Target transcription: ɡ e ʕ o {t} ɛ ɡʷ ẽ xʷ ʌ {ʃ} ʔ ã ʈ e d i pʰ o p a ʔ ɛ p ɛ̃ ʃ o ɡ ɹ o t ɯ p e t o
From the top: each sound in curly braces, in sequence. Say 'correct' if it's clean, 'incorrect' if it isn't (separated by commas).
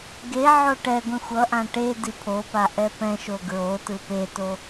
incorrect, incorrect